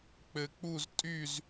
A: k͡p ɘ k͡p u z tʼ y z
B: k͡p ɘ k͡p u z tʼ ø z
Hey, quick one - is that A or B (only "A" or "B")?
A